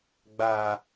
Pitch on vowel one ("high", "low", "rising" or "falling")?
low